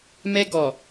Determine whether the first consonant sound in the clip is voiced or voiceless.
voiced